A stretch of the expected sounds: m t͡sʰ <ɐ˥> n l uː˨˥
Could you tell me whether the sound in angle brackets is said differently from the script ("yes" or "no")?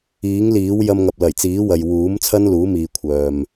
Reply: no